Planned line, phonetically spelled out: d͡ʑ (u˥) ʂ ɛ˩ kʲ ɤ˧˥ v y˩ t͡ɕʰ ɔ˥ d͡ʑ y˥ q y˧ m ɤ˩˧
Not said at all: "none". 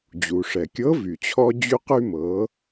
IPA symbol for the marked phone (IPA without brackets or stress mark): u˩